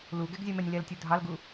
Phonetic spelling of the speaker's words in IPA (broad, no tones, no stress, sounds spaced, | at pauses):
l u ɡ ɛ ɡ zʲ a m ɛ nʲ l ɛ l tʲ u dʱ ɑ l ɡ u